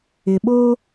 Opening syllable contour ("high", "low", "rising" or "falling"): low